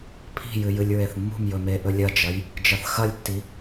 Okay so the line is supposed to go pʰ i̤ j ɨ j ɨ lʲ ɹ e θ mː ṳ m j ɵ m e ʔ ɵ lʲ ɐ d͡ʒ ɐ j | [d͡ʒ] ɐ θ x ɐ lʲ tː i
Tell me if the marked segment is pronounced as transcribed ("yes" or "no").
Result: yes